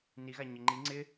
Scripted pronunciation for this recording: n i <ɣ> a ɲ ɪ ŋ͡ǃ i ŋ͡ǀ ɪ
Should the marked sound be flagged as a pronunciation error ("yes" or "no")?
no